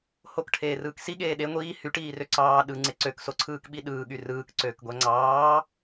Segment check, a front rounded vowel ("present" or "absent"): present